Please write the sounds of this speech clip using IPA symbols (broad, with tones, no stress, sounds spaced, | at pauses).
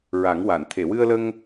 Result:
ɹ a˨˩˦ ŋ w a˨˩˨ n t̪ʰ e˨˩˨ w ɨ˧ ə̯ l ə˧ ŋ